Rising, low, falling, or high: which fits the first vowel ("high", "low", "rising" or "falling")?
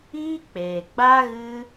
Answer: high